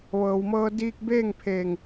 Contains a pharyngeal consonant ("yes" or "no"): no